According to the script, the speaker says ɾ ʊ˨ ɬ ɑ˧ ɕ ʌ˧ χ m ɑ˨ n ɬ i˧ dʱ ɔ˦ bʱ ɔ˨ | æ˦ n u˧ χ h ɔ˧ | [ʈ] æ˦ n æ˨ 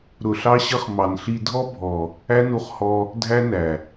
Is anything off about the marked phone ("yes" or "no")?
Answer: yes